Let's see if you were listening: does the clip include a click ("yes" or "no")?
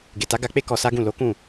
no